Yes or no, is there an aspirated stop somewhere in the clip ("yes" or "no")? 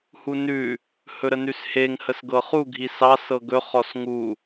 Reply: no